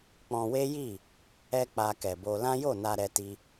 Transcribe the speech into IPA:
k͡p ɔ̃˧ w e˦ j i˦˨ | ɛ˦ k͡p a˧ k ɛ˨ b o˧ l ã˦ j o˦˨ n a˧ ɾ ɛ˦ t i˦

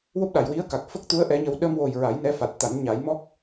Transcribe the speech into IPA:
w o˦˥ p̚ ɗ a˨˩˨ j w i˧˥ ə̯ k a˨˩ k̚ f ə˦˥ k̚ t̪ u˧˥ ə̯ ʔ ɛ˧˥ ɲ ə˧ w ɗ ə˧ m w o˨˩ j ɹ a˨˩˦ j n ɛ˧˥ f a˨˩ t̚ t̪ a˨˩˦ n ɲ a˨˩˦ j m ɔ˦˥ k̚

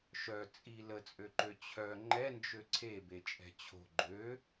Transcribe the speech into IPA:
ʃ œ t͡sʼ i l ə t͡sʼ ø ǃ ø t͡ɕʰ œ ŋ͡ǃ ɛ n d͡ʒ ø ǀʰ e b e t͡ʃʼ ɛ̤ t͡ɕʰ o̤ ɡ͡ǃ ø

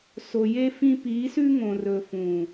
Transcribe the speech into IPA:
s o˨ j e˦ f ĩ˦ p i˨˦ s ʉ˦ ŋ õ˨ r ɵ˨ f ũ˨

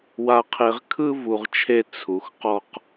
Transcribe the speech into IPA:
w a˧ qʰ e˧ ʁ kʰ ɯ˦ v u˨ ʁ t͡ʃʰ e˧ t͡sʰ u˨ x q ɔ˦ q

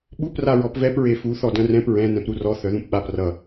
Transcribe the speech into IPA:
ɓ u p r a ɹ ɔ p v ɛ p ɹ e f u θ ɔ d œ̃ r ɛ̃ p ɹ ɛ̃ n ɛ̃ p ɾ u r ɔ θ œ ð ũ p ɓ a p r ʌ

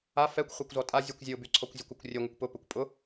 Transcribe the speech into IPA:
a f ɛ kʷ χʷ ɛ kʷ z ɔ tʼ a zʲ u kʷ zʲ ʊ b y ǀʰ ɔ kʷ zʲ ɘ kʷ ʊ kʷ rʲ ɘ ŋʷ ɘ kʷ p ʊ p ɵ kʷ pʼ ʊ

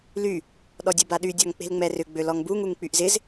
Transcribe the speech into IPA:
l y | ɗ ɔ dʲ o b a ɗ y dʲ ɔ ŋ k͡p e̤ l ŋ͡m ɛ r ʏ ɡ͡b ø l ɔ ŋ b u ŋ u ŋ k͡p y ʔ z ɪ z

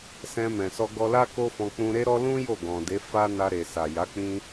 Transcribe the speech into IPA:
s ɛ̃˧ m ɛ̃˨ s ɔ˧ ɡ ɔ˧ l a˦ k o˦ f ɔ̃˧ k͡p ũ˧ ɾ e˦ ɾ ɔ˦ l ũ˦ j o˦˨ ɡ ɔ̃˨ d e˨˦ f a˦ n a˧ ɾ e˨ s a˨ j a˨˦ k͡p ĩ˦

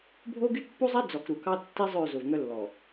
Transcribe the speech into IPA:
bʱ o˦ ɡ y˦ t pː u˦ zˤ e˦ d͡z ɔ˨ k ɾ u˨ k ɑ˦ tː i˦ zˤ ø˦˨ z o˨ v ŋ œ˦ lː ɔ˨

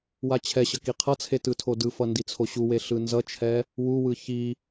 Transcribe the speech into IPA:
w a t͡ɕʰ ɛ ɕ ʌ k i qʰ ʌ t͡sʰ e t ɯ tʰ o d ɯ f ʌ n d i t͡sʰ o ɕ u w e ɬ ɯ n z ʌ t͡ʃʰ ɛ | w u w ɯ ç i

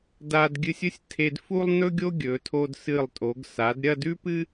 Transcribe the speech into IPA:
d a˧ d ɡʲ ɨ˧ sʲ ɵ˥ sʲ tʰ e˧ d f u˥ lˠ n ɵ˥ ɡʲ o˥ ɡʲ ɵ˩˧ tʰ o˧ d s ɨ˧˩ lˠ tʼ o˩˧ ɡ s a˩˧ d ɾʲ ɐ˥˧ d ʉ˥ p ɨ˥

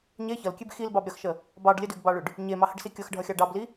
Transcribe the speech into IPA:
ɲ e ç ʌ l kʲ e b x i l b ɑ b ɾʲ ʌ x ʃ ə | b ɑ ɖ lʲ ə d ʉ ɡ b ɑ ɭ ʉ ɖ | ɲ e m ɑ h ə ɖ s i kʲ ʌ x ɖʱ ʌ xʲ ɑ ɖ ɑ b l i

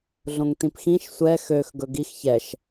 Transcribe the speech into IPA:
ɮ õ ŋ t ĩ p x ĩ ʃ sʷ ɛ x ø x ɡ ɵ ɡ i x ç ɛ ʃ

